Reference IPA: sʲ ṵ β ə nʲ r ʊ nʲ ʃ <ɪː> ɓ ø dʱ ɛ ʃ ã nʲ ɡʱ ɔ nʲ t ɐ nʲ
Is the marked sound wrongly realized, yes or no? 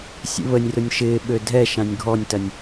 no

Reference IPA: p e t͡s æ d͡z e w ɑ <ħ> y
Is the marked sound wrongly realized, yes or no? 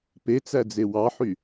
no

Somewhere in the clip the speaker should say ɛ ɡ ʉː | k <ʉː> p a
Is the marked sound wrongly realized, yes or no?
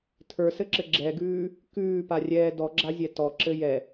no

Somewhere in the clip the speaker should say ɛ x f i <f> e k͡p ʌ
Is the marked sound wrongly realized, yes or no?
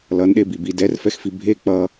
yes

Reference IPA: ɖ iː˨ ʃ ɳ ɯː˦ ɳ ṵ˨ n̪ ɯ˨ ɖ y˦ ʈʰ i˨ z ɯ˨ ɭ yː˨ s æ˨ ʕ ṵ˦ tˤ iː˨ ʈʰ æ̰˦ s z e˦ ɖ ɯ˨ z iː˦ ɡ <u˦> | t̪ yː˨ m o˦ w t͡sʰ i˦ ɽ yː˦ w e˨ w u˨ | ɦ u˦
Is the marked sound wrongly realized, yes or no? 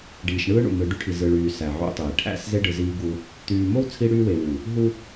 no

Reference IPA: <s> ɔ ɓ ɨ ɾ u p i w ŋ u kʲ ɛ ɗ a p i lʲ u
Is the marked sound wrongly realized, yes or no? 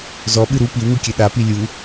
yes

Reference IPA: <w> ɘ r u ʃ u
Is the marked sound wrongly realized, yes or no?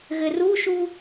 yes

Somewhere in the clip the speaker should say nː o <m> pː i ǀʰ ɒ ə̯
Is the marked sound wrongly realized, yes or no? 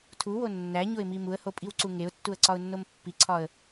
no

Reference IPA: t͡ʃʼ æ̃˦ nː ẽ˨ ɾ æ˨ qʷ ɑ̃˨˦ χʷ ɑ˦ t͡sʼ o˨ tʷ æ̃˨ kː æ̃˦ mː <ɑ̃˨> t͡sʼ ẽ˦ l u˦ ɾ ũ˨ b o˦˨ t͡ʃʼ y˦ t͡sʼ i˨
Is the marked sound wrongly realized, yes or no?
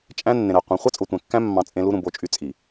yes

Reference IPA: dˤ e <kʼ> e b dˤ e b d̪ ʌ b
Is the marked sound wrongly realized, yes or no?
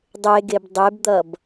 yes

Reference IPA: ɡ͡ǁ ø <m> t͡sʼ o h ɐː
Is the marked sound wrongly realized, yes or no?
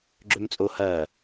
no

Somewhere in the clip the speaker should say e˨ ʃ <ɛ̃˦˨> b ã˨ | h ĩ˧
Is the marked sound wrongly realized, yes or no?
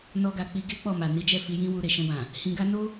yes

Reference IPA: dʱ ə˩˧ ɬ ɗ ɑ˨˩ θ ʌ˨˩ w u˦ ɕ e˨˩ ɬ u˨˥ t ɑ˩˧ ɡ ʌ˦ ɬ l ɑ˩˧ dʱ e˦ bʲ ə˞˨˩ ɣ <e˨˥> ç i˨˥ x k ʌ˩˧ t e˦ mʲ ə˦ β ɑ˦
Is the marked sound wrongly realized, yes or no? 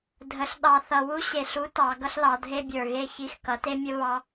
yes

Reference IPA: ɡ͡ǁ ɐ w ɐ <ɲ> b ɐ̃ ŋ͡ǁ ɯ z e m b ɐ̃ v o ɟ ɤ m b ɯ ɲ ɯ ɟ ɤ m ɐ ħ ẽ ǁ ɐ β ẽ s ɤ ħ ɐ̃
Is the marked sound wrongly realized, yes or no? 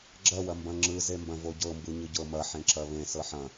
yes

